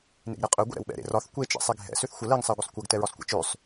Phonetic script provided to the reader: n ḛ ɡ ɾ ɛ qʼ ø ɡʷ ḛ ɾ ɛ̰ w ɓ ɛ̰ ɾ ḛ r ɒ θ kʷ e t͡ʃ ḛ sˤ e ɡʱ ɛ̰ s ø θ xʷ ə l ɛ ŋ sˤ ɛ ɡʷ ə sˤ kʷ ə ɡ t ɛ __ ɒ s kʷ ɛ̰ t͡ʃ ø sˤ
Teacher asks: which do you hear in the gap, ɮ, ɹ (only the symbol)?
ɹ